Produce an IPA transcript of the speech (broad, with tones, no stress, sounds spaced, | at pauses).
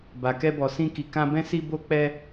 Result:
b a˨ k ɛ˧ b ɔ˨ s ĩ˧ k i˨ k ã˧ b ɛ̃˦ s i˧ b o˧ k͡p ɛ˧